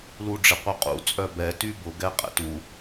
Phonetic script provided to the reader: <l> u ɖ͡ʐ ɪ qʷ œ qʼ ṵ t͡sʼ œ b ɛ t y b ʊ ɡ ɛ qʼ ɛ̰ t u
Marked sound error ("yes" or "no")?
no